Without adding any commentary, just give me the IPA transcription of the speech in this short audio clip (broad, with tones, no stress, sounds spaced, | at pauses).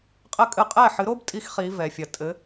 qʼ ɘ˥ kʼ ɨ˥˩ qʼ ɛ˥˩ ħ ɨ˩˥ ɾ o˥ b tʼ i˧ x χ i˩˥ v ɛ˩ fʲ ɐ˩ tʼ ɘ˩˥